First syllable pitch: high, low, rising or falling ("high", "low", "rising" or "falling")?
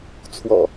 low